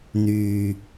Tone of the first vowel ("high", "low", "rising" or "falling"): low